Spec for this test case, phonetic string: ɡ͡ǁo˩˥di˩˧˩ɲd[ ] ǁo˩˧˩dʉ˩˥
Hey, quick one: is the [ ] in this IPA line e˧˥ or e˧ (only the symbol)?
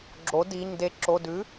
e˧